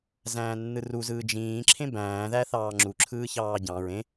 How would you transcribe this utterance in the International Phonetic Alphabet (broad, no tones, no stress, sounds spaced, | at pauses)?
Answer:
z æ̃ː nː ɯ r u z ɯː d͡ʒ ĩː ǁʰ ẽ b æ̃ː ð æ θ ɑː ŋ͡ǁ u ǁʰ ɯː ç ɑː ɟ ɑ̃ ɹ ẽ